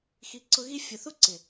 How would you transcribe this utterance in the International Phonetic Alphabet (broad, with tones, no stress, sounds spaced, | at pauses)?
x i˨˦ ǀ ʊ˧ ɣ i˧ fʲ ʊ˨ θ u˦ ǀ ɪ˨